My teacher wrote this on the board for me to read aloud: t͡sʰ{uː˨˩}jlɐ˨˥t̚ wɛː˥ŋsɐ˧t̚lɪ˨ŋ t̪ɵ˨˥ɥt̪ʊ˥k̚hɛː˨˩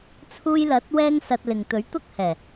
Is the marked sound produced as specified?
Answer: no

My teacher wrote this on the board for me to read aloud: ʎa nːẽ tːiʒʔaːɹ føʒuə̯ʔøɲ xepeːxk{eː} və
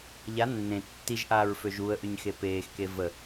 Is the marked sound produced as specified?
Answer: no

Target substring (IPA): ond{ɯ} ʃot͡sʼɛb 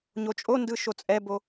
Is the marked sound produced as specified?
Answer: yes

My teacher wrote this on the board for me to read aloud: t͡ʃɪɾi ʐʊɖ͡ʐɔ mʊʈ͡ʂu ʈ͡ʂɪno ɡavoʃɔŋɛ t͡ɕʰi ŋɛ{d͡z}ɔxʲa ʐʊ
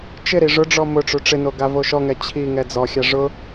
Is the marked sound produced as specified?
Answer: yes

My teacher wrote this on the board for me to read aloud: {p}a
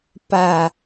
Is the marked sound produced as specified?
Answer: yes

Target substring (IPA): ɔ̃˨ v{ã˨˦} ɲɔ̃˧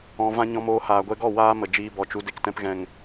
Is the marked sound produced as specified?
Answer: no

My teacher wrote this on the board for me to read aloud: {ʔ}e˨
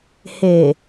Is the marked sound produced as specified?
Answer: no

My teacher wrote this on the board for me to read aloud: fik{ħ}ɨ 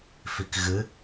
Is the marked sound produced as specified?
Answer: no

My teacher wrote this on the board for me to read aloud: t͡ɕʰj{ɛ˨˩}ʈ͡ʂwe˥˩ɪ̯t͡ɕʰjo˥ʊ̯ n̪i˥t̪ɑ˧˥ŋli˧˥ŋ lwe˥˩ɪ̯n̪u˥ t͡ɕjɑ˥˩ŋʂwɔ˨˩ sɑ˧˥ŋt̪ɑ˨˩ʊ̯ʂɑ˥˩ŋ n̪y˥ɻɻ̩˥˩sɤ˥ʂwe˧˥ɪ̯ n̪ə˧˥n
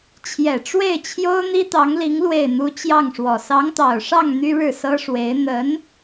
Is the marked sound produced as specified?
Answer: yes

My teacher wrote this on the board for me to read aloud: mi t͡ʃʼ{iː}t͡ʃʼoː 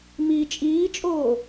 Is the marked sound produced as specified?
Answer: yes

